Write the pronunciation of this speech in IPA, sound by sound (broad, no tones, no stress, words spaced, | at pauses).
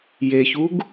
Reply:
jeçuɡ